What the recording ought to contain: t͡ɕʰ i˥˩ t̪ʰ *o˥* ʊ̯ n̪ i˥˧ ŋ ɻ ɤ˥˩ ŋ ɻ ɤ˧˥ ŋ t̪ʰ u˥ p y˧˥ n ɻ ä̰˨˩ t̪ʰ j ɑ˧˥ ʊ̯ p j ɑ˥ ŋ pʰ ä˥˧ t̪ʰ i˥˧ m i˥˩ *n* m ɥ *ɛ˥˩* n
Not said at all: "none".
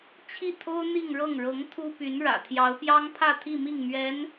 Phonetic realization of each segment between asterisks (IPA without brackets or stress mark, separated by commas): o˥, ŋ, ɛ˧˥